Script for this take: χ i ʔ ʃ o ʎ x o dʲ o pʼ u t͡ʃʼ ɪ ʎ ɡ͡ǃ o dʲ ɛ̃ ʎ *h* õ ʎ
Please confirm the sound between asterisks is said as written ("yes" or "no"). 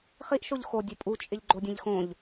no